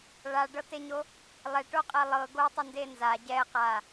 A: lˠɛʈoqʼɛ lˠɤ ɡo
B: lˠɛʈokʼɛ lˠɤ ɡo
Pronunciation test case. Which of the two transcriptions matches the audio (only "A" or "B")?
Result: A